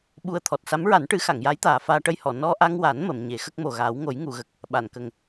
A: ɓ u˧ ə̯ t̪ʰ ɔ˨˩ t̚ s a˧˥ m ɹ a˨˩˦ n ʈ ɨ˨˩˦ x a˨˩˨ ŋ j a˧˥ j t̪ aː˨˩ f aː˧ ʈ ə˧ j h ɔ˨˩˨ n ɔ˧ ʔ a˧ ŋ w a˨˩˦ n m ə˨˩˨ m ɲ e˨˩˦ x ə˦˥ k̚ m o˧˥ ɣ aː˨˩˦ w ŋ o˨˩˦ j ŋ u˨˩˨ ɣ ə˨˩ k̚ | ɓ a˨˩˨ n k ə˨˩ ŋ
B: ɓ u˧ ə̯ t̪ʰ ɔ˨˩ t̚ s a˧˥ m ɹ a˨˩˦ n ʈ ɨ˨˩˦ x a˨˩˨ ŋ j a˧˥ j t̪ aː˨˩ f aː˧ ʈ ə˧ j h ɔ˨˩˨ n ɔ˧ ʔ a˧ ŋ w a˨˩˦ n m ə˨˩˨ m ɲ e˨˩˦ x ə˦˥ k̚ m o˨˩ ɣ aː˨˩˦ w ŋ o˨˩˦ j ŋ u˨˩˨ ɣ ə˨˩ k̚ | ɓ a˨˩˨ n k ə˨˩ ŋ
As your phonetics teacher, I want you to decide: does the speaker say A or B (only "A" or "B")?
B